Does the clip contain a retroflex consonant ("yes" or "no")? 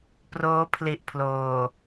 no